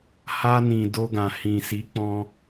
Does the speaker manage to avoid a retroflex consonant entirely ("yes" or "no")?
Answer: yes